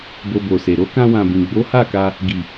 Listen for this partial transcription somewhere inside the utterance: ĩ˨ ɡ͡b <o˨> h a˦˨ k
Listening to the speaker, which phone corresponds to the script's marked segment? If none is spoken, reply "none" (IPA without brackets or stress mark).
o˨˦